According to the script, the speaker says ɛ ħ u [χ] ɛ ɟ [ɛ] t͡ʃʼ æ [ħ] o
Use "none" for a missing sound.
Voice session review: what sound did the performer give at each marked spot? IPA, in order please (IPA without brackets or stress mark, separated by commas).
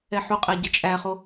qʼ, ə, χ